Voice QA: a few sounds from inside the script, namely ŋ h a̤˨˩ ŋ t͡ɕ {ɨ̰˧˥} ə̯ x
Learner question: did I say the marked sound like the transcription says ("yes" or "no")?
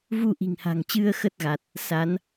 no